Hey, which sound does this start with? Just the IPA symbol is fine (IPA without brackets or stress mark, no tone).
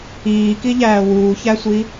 iː